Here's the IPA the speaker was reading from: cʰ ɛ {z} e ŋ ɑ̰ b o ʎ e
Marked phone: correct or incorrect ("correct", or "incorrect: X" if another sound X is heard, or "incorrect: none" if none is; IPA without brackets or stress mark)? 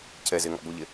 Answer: correct